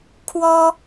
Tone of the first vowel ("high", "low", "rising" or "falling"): high